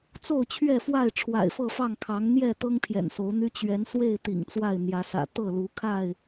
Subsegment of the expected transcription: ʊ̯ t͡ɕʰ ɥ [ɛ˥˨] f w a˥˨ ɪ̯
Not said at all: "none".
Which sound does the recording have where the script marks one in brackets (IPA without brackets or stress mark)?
ɛ˥˨